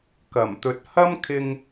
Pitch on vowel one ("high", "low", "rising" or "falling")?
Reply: low